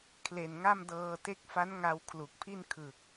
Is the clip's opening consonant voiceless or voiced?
voiceless